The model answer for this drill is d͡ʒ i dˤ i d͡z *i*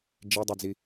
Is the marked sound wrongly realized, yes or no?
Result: no